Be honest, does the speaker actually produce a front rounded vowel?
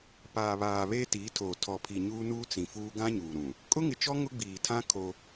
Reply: no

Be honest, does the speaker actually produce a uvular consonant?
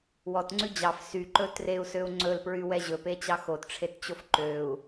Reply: no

